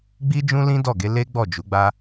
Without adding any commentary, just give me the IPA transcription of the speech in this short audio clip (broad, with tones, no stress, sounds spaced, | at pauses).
ɡ͡b i˦ d͡ʒ ũ˦ l ĩ˦ d ɔ˦˨ ɡ e˧ l e˦ ɡ͡b ɔ˦˨ d͡ʒ u˨˦ ɡ͡b a˦